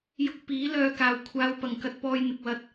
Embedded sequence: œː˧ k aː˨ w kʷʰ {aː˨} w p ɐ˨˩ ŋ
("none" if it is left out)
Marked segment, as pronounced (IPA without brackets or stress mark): aː˨